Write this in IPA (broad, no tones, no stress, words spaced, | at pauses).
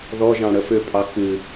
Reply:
ðɔʒɑ̃ ɽəfʏpʼɑ kɨ